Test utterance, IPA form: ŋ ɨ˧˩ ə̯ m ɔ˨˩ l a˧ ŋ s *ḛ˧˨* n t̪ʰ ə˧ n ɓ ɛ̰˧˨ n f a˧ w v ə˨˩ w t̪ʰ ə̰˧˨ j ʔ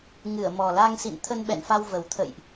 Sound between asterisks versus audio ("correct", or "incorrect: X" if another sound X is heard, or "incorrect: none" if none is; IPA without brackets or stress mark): incorrect: ḭ˧˨